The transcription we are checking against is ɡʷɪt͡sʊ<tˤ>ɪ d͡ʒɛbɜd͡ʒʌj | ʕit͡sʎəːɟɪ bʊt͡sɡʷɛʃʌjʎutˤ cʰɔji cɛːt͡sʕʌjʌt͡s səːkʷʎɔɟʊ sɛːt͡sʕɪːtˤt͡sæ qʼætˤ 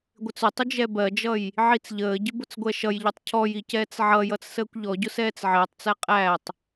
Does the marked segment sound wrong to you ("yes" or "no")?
no